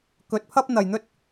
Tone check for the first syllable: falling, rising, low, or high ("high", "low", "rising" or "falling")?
rising